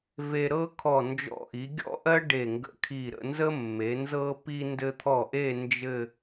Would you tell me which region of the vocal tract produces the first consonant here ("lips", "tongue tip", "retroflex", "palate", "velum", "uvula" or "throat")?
lips